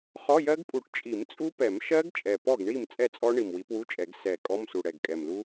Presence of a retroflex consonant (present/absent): present